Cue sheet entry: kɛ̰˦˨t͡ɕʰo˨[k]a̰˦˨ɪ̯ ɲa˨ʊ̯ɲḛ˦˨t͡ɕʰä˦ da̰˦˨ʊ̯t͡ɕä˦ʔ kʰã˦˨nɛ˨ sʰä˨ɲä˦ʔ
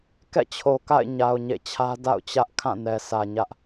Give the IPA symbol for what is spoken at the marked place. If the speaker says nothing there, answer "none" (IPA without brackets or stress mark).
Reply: k